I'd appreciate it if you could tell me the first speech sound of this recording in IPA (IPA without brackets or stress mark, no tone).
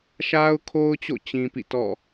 ʃ